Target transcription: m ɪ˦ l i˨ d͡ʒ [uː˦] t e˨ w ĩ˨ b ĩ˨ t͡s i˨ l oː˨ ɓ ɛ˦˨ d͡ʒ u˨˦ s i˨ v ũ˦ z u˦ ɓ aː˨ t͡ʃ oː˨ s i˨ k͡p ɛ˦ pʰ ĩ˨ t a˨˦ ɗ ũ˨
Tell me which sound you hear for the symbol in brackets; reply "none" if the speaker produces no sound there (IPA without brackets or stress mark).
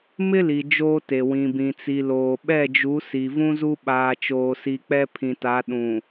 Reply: oː˦